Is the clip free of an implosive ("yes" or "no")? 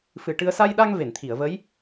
no